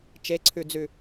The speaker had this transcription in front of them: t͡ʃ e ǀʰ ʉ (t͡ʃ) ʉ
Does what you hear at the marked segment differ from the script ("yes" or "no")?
yes